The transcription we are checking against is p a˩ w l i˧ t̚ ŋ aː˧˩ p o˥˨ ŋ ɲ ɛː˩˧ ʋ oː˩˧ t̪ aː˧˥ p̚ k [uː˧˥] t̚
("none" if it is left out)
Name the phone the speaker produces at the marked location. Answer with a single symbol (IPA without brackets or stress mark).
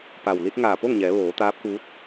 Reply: uː˧˥